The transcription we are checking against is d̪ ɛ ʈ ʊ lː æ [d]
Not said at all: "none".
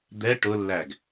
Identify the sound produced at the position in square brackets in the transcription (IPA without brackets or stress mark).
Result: ɡ